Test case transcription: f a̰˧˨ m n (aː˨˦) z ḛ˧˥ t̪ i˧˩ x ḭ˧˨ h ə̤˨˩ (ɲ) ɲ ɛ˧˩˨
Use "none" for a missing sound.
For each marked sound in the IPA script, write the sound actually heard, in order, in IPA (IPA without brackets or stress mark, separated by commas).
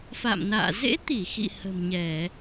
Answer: a̰ː˧˨, m